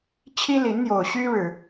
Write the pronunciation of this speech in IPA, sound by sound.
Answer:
t͡ɕʰ i˦ l i˨˦ n n̪ j o˨˩ ʊ̯ ɕ y˦ ɻ ɻ̩˨˩

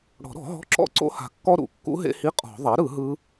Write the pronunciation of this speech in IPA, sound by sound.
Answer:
ɽ ɔ̤˨˩˦ ɾ ɔ̤˨˩˦ ɦ ɔ̤˧˥˧ ǁ ɔ̰˦˥ ǀ o̰˦˥ h a̤˨˩˦ kː ɔ˦˥ ɾ ṵ˨˩˦ kː ṵ˦˥ ɦ ḛ˧˥˧ h i˧˥˧ qʼ ɔ̤˨˩˦ ðˤ a˩˥ ɾ ɯ˨˩˦ ɦ ɯ˦˥

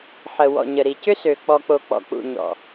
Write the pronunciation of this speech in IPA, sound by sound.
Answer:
ħ ə˨ w ɔ̰˨ ɲ ə˨ ɾ i˨ c ʏ˦ s ø˨ k͡p ɔ˨ k͡p o˨ k͡p ɔ̰˨ k͡p ṵ˨ ɲ ɔ̰˨

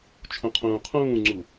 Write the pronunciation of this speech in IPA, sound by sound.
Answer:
t͡ʃʰ ũ qʰ ũː qʰ ũː ŋ͡ǀ u

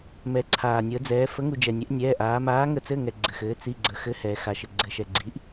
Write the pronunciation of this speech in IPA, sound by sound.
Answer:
m ɛ˧˥ ǀʰ aː˧ nʲ əː˧˥ d͡z ɛː˧˥ f ə˧˥ ŋ u˧ d͡ʒ ɛ˧ nʲ ɛ˧˥ ʔ nʲ ɛː˧˥˧ ʔ aː˧˥ m aː˧˥ ŋ ə˧˥ t͡s ɘ˧˥˧ ŋ ɛ˧ ɡ͡ǀ ɘ˧ x ɘː˧˥ t͡s i˧˥˧ ɡ͡ǀ ə˧˥ x ɘ˧˥˧ h ɛː˧ x a˧ ʃ ɘ˧ ɡ͡ǀ ɘ˧ ʃ ɛ˧ ɡ͡ǀ iː˧˥ ʔ

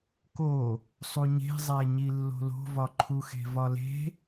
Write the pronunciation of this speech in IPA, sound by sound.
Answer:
k o | sˤ u ɲ e̤ zˤ æ ɲ i lː o̤ l o̤ v ɒ ǃʰ u x e̤ v ɒ l e̤

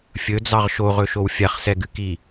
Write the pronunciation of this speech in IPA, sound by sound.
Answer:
fʲ ɵ d͡z ɑ ʁ ʃ o ʁ ɵ ʃ o w fʲ a χ s ɛ ɡ ɨ k i

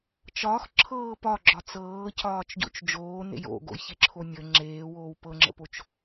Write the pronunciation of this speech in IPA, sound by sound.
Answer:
t͡ʃ ɒː x ǁʰ ɤː p ɒ ɡ͡ǁ ɒ t͡s ɤː c ɒː t͡ʃ ɟ o̰ t͡ʃ d͡ʒ oː n ḛ j o̰ ɡ o̰ j ç e ǁʰ o nʲ ə ŋ͡ǁ eː w oː w p ɤ ŋ͡ǁ ə̰ p o t͡ʃ

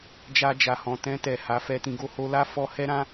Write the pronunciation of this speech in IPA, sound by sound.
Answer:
d͡ʒ a˧ d͡ʒ a˨ h ɔ̃˨ t ɛ̃˧ t ɛ˨ h a˨˦ f ɛ˧ t ĩ˧ ɡ o˧ h o˧ l a˦ f ɔ˧ h ɛ˦ ɾ ã˦

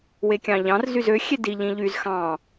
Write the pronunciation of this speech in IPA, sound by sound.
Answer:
w e kʲ ɑ̃ ʎ ɑ̃ r z y z ø xʲ e d i ʎ ĩ ʎ y z x ɑ̃

